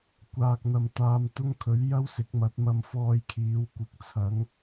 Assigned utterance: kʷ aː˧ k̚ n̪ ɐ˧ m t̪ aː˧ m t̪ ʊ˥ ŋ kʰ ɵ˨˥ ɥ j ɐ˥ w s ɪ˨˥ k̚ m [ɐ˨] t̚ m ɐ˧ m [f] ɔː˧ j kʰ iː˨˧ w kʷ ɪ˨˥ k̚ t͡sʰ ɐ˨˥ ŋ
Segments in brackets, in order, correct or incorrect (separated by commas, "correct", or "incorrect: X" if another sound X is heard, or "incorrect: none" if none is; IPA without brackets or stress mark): incorrect: ɐ˨˥, correct